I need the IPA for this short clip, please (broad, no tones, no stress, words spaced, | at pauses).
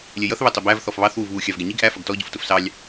lʲɛjʌθ βɛtˤɪbæv θɔfβɑθ wuvβu xʲɑvɡɛɲiɡ ʔæ fʌɡtɔ ɟʊftʊfsɑlʲ